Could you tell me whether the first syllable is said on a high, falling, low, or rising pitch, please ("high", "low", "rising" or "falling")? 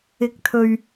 rising